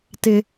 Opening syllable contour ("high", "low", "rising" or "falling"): high